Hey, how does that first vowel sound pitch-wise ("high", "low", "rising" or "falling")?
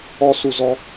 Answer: high